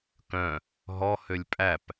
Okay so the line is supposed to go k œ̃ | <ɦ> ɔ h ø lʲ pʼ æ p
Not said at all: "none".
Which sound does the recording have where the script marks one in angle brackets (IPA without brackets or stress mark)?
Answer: ɦ